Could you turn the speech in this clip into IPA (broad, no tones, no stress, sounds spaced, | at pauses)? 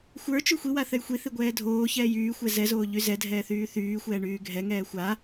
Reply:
xʷ ə˞ t͡ʃ y xʷ i w a θ ɛ j xʷ i θ i ɡʷ ɛː dʱ oː ç ɛː j yː xʷ ɛ z ɛ z oː ʎ y z ɛ dʱ ɛː θ yː θ yː xʷ ɛː ɳ yː ɡʱ ɛ ŋ ɛː xʷ a